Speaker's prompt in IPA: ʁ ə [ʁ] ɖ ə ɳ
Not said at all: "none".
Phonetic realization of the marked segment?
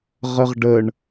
ʁ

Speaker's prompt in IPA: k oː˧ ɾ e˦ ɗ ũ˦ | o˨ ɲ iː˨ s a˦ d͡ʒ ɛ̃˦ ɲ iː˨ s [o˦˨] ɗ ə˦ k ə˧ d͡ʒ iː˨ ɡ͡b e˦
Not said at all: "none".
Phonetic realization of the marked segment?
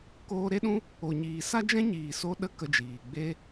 o˧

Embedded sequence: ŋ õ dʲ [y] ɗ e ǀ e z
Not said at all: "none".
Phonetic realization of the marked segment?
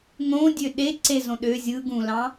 ø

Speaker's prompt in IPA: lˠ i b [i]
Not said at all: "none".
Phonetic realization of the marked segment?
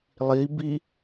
i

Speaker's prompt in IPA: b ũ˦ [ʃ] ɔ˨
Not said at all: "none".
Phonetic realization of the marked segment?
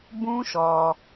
ʃ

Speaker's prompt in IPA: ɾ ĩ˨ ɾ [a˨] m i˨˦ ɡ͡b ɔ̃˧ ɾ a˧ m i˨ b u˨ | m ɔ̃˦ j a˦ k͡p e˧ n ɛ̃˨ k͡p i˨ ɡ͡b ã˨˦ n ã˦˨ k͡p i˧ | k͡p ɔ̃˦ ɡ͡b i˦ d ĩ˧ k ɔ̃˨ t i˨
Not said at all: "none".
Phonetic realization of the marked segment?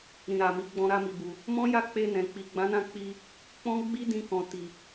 a˨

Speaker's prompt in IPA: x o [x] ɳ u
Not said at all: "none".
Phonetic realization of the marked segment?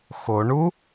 none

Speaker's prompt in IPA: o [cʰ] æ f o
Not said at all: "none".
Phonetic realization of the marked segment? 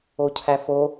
cʰ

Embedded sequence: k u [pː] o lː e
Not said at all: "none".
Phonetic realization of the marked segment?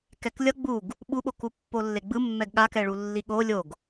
pː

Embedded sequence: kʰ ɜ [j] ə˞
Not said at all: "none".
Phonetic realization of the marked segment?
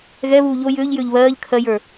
j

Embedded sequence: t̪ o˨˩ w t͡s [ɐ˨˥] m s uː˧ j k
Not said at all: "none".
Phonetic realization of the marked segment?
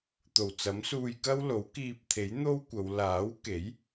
ɐ˨˥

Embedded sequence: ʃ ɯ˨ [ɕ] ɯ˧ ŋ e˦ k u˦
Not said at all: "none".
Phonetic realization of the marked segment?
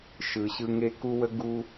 ɕ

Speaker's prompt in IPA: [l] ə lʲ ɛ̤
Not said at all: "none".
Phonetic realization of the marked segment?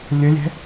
lʲ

